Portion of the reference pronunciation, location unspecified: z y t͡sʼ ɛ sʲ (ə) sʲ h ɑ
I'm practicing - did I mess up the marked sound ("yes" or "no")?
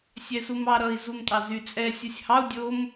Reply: yes